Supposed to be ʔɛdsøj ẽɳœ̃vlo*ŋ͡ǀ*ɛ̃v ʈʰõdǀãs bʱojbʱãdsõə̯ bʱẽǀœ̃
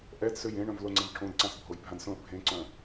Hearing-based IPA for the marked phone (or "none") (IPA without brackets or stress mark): ŋ͡ǀ